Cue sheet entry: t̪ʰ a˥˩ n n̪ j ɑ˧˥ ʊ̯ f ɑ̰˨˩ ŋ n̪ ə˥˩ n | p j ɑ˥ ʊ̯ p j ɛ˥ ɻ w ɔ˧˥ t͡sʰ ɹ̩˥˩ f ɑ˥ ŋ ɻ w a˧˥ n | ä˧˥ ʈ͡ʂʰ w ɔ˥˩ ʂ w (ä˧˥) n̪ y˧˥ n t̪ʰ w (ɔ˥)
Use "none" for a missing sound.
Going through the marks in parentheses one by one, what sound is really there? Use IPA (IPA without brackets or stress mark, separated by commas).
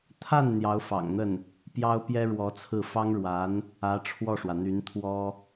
ä˩, ɔ˥